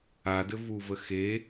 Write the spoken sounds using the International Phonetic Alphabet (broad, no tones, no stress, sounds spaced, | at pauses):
a d ɘ v u v ə x e